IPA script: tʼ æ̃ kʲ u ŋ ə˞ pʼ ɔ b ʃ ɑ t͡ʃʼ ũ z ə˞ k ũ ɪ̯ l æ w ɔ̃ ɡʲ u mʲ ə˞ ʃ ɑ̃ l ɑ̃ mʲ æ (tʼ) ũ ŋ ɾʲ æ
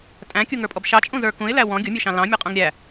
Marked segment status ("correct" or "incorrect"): incorrect